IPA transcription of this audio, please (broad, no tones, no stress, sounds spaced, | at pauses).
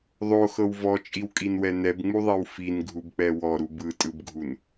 ðˤ o x ɤ w v ɔ t͡ʃʼ i w kʼ i n w ɛ n ɛ b ŋ͡m u ðˤ i w f i n ɡʱ u b k͡p ɛ w ɔ ɾ u b ɯ tʼ ɯ b ɡʱ u n